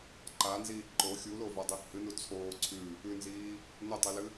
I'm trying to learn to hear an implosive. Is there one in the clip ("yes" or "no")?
no